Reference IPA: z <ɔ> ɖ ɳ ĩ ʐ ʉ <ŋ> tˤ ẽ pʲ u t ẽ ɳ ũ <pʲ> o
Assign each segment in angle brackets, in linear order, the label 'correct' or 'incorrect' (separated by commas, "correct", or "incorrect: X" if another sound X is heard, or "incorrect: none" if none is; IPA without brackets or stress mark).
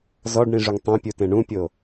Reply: correct, correct, correct